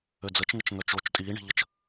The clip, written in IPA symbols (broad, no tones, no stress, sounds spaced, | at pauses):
ø d͡z ə t͡ʃ ŋ ə t͡ʃ ŋ œ t͡ʃ o t͡ʃ tʼ iː ɳ i̤ ʎ ə t͡ʃ